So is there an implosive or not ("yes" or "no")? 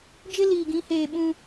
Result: yes